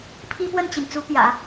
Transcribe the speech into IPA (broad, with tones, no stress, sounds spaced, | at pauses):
pʰ i˥ p w ə˥˩ n t͡ɕ i˩ n t͡s u˧˥ p j ä̰˨˩˦